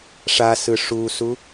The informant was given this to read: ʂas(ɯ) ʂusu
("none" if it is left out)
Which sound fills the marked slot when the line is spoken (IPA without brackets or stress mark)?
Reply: ɯ